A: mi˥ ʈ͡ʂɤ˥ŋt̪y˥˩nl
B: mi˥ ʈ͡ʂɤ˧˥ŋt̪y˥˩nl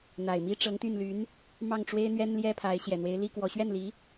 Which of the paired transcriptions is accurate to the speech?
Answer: B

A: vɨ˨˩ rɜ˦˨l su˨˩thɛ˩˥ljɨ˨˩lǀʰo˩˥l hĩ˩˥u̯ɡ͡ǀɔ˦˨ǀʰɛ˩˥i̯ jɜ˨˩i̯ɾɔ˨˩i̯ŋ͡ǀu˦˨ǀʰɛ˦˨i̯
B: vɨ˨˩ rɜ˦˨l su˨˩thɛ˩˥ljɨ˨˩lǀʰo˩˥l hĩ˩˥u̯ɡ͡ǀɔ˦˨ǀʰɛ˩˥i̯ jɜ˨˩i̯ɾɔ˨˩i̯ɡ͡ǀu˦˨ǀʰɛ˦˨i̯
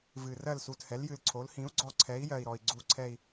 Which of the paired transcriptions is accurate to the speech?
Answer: B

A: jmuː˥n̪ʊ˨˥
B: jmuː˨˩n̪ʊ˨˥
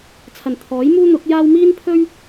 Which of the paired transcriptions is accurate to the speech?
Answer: A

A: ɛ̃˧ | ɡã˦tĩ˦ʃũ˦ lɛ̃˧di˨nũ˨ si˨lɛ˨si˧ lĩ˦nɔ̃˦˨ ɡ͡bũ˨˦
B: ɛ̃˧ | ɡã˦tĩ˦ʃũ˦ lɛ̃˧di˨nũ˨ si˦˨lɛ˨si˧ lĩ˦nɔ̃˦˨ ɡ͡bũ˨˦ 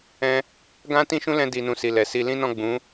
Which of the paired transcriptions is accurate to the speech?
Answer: A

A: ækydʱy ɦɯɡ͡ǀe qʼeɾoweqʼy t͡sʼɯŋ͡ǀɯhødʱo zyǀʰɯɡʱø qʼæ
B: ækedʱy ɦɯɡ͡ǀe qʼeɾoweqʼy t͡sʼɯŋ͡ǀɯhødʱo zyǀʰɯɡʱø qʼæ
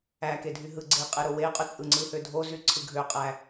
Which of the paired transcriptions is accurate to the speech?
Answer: B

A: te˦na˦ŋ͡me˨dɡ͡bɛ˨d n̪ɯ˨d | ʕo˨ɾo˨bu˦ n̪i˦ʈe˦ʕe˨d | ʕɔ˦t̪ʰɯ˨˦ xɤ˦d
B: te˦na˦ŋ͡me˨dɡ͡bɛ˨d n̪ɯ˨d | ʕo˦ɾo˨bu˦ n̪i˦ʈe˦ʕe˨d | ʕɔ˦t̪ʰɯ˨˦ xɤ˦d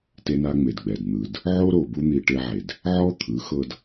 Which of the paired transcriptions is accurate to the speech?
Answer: B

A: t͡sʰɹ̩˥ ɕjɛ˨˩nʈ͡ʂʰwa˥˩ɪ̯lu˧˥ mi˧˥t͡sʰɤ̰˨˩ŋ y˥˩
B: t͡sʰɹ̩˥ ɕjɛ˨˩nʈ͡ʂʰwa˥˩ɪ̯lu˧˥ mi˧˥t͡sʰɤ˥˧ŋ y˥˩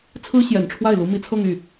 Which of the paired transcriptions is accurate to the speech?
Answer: B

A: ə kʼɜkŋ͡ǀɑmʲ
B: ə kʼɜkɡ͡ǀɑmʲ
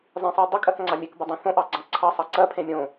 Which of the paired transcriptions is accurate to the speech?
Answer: A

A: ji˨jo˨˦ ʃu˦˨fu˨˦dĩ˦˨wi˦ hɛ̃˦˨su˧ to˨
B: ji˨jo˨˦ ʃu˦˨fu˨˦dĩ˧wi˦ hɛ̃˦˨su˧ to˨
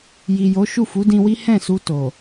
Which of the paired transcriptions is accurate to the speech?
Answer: B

